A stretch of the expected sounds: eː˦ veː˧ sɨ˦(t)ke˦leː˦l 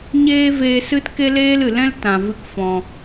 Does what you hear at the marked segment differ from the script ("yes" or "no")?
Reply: no